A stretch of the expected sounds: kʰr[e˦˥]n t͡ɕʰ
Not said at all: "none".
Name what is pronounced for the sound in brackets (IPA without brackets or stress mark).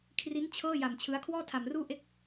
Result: i˦˥